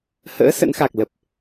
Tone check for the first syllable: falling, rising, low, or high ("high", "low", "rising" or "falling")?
rising